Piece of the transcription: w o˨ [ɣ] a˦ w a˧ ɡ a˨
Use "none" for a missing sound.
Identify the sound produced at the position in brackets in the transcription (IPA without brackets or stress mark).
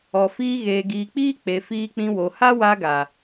h